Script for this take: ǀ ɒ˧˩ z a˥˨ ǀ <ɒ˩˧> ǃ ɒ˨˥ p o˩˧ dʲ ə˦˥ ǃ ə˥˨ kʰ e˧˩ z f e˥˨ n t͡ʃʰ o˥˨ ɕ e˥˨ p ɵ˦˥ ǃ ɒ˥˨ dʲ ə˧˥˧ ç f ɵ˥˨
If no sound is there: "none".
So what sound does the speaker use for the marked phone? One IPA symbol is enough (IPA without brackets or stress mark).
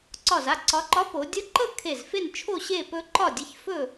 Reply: ɒ˩˧